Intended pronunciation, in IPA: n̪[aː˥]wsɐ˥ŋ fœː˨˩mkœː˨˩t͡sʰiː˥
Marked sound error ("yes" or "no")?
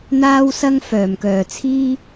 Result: no